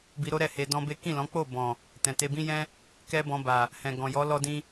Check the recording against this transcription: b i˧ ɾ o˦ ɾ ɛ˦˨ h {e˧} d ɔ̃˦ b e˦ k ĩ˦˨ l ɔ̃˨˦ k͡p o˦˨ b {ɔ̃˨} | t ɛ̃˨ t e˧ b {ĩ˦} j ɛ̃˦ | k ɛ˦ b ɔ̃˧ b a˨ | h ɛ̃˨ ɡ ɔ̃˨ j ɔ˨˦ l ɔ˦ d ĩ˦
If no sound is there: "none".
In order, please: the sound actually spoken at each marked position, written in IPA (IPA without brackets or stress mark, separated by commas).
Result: e˧, ɔ̃˨, ĩ˦